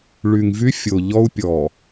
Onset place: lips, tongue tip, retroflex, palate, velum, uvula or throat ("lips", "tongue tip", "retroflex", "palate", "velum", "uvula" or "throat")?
retroflex